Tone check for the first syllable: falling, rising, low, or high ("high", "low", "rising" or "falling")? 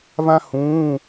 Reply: high